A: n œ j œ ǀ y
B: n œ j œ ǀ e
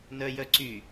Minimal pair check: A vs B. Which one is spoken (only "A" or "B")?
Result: A